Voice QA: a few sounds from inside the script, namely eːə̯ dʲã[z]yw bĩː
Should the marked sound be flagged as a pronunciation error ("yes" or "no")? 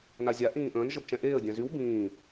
no